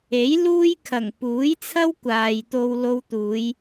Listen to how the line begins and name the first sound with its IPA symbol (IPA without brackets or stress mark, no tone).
e